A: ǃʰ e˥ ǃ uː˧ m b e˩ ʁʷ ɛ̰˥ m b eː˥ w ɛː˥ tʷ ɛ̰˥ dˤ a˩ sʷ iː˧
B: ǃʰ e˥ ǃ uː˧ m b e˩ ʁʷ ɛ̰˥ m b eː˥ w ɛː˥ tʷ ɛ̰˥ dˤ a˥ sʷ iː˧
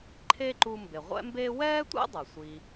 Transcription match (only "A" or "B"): A